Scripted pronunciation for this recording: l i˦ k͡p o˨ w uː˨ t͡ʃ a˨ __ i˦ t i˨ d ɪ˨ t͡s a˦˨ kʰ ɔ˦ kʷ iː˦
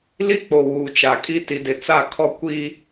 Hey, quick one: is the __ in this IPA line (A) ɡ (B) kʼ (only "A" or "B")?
B